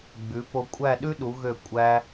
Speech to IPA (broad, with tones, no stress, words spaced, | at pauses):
ɡ͡bʉ˩˧po˧kʷʼæ˥˧ ɗʉ˥ɗu˩˧ɣø˧˩ kʷʼæ˧